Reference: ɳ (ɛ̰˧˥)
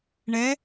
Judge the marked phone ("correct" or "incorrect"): incorrect